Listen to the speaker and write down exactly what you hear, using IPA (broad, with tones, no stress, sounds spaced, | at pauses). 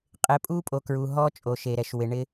qʼ e˨ pʼ u˦ pʼ o˨ k ɹ u˨ ɦ ɔ˦ t͡ʃʼ o˨ ʃ e˨ ɾ ɛ˨ ʃ w ɪ˨ ɳ ɪ˦